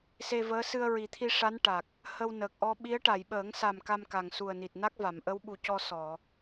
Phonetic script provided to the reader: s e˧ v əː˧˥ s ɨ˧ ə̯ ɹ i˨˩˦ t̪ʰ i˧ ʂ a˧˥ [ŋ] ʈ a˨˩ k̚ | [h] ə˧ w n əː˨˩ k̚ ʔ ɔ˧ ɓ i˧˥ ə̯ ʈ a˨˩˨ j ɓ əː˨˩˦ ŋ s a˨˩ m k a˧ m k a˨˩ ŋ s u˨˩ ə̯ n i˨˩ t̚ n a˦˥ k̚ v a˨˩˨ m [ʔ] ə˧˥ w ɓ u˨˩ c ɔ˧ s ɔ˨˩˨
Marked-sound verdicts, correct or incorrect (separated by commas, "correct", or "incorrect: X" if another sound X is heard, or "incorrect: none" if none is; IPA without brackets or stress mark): incorrect: n, correct, correct